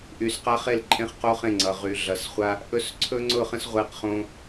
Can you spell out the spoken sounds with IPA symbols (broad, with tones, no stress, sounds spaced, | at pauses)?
ʔ y˩ s q a˧ χ e˧˩ l ǃʼ ẽ˧ χ q o˧ χ ẽ˧˩ ŋ͡ǀ ʌ˩ ʁ y˩ ɮ ʌ˩ s χʷ a˧ | ʔ ɵ˧˩ s ǀʰ ɵ˧ ŋ͡ǀ ʊ˧˩ χ ə̃˧ s ʁʷ e˧˩ q χ õ˧